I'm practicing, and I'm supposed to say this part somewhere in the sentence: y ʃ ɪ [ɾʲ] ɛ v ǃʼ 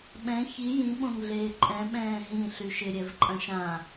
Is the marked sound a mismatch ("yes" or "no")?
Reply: no